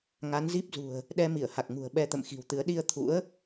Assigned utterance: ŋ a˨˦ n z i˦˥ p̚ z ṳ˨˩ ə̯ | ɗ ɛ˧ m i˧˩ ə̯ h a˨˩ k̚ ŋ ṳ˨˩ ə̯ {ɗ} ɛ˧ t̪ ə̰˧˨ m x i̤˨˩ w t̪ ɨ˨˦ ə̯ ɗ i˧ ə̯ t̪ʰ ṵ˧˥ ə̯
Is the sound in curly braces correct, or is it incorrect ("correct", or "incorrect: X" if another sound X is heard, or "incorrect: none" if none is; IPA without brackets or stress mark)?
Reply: incorrect: ɓ